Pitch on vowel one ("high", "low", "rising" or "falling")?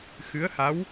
rising